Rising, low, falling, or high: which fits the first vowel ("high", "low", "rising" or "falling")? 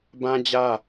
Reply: high